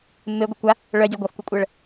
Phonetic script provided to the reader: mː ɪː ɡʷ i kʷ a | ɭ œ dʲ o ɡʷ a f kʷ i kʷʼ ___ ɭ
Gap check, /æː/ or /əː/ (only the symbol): əː